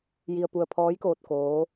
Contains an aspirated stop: yes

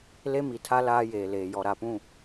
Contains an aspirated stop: yes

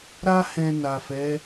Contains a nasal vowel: yes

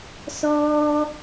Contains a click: no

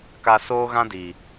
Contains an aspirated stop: no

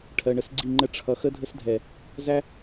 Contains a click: yes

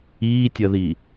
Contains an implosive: no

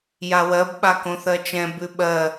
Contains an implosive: yes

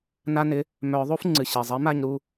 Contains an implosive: no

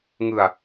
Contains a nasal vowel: no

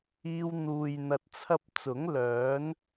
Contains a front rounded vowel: yes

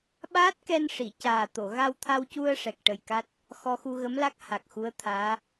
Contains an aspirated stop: yes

